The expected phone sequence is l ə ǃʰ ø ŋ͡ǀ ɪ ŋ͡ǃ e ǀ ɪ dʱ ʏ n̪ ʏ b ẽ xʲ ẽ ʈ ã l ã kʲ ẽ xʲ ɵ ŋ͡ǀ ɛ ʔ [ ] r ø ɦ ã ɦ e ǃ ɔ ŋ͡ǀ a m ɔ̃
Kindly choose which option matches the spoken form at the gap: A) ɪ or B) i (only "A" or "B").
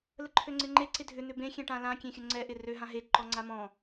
A